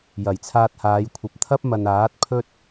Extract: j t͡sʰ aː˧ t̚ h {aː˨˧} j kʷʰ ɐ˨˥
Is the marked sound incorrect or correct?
correct